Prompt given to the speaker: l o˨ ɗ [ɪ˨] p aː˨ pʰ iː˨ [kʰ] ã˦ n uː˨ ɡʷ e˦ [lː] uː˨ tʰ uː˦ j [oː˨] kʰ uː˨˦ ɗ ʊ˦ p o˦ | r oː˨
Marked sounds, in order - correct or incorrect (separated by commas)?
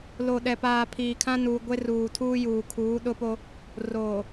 incorrect, correct, incorrect, incorrect